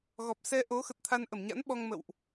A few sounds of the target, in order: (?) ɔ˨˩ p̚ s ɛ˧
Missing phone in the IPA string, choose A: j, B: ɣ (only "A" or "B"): B